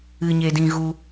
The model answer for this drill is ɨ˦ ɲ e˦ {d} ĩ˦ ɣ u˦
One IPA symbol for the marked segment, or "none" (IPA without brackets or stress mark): d